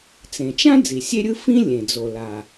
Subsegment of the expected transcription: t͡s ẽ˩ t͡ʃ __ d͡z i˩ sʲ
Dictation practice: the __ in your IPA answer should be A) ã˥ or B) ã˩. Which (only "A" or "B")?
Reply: A